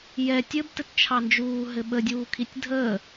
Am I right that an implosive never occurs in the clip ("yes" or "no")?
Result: no